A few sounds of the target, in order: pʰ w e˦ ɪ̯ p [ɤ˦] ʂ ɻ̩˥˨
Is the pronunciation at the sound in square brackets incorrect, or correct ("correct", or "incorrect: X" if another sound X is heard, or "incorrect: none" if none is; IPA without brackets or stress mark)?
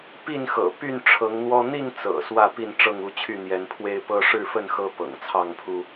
correct